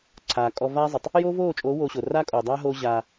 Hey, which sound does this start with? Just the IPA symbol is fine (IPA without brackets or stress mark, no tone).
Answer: ǀʰ